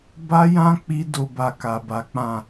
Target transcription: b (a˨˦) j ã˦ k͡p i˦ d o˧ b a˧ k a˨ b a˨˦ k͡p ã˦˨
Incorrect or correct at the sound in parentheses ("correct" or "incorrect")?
incorrect